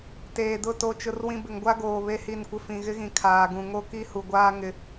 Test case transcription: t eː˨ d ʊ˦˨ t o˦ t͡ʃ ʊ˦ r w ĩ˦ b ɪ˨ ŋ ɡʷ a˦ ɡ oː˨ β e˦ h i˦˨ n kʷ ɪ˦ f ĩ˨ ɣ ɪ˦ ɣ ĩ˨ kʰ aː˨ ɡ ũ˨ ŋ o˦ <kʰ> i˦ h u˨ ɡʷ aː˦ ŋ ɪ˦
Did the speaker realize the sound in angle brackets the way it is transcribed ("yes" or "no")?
no